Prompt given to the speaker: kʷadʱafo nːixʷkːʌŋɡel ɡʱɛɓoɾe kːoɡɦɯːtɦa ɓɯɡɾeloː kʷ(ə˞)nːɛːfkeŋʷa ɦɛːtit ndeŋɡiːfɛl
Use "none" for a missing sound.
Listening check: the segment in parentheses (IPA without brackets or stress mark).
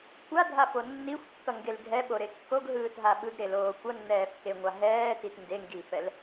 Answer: ʌ